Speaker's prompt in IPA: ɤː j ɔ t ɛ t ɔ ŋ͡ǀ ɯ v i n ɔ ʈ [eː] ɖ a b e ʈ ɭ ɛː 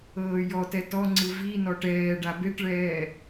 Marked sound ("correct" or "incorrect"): incorrect